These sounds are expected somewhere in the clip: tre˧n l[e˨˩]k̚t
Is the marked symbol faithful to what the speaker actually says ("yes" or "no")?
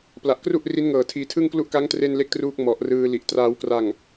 no